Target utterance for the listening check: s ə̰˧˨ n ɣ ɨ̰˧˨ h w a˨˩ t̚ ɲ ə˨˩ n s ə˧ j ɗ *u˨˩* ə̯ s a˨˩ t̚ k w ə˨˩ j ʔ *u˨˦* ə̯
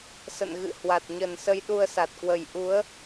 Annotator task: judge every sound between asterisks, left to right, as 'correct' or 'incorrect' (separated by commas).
incorrect, correct